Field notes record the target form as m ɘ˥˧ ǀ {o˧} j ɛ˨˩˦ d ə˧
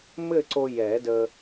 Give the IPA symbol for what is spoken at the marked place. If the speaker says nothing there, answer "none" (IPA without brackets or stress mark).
o˧